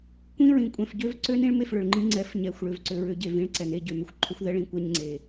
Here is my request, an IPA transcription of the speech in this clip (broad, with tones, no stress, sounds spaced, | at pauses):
kʷ ĩ˦ ɹ ĩ˨ kʷʼ ɛ̃˨ f ɟ ø˦ v ǀ ø˦ n ĩ˦ ɭ m e˦˨ f ɭ ʏ˨ ɭ ŋ͡ǃ ĩ˦ ŋ͡ǀ ɛ˨˦ f ɲ ɛ˨ xʷ ɭ ø˨ v ǀ ʏ˨ ɹ ʏ˨˦ ɟ e˨ v ĩ˦ ɭ ǀ ɛ˨ n e˦ ɟ ø˨ m ʏ˦ xʷ ǃʰ ʏ˦ xʷ ð ɛ˦ ɭ ĩ˨ kʷ ɛ˦ ɲ ŋ͡ǀ e˨